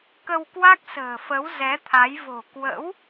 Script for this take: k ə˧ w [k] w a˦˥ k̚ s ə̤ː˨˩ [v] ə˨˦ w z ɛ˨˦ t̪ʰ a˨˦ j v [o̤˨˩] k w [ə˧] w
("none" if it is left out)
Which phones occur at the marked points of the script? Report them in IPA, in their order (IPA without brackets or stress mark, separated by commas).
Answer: k, f, o̤˨˩, ə̰˧˥